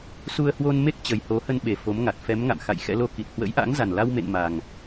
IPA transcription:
su˧ə̯hwo˧n me˦˥k̚ t͡ɕə˨˩jho˨˦hə˧n ɓe˨˩ fo˨˦mŋa˨˩t̚ fɛ˨˦m ŋa̰˧˨mxa̰˧˨j xɛ̰˧˥lo˧ ki˨˩t̚hwə̰˧˥jʔa̰˧˥ŋza˨˩n la˧wmḛ˧˨n ma˨˩ŋ

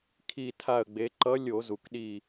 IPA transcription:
kʰi˧˩tʰa˧˩ə̯ɡ͡be˩˧ǃʌ˧˥ lʲo˧˩˧zu˩kɗi˧˩

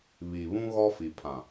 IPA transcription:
βi˨βũ˦ ɣɔ˦fi˨pʰã˨

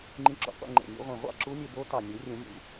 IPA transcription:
ŋ͡ǃĩ˧˥ǁo̰˨˩ qʷḛ˥˨ŋ͡ǃḛ˨˩ nʲṵ˧ʁʷẽ˨˩ʁʷɑ̰˥˨ ǁu˧˥nʲø˧ bo˧˥tɑ˨˩ nʲu˨˩˦rʲũ˨˩˦ nʲṵ˨˩

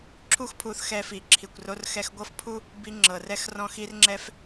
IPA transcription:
ǁʰu˥xpʰu˧θxɛ˧fi˩ ǁʰi˩kʷro˧rxɛ˧x ɡʷɤ˥fpʰu˥ | bi˧ ŋ͡ǁɤ˩rɛ˧xrɔ̃˧ xi˧rŋ͡ǁɛ˧f

